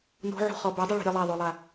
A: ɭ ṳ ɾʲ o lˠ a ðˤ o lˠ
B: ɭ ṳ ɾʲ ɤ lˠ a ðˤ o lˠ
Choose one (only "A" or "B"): B